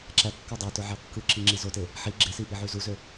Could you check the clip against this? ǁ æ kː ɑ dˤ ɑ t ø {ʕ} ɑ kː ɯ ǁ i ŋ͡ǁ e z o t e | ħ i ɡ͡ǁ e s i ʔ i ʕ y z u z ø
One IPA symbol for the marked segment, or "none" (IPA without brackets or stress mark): ʕ